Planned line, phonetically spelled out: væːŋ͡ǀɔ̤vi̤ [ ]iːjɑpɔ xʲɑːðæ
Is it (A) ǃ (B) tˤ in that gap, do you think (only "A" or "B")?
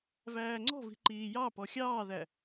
A